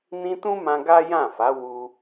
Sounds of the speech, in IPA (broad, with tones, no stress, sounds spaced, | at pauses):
n ĩ˧ t ũ˦ m ã˧ ɡ a˦ j ã˦˨ f a˨˦ w u˧